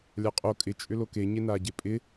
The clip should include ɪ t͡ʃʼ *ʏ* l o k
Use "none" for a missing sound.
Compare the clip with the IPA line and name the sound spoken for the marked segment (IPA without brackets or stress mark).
ʏ